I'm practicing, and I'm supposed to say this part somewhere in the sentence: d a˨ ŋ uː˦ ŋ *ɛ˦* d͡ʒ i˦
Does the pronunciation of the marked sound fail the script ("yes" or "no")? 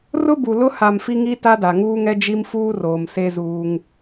no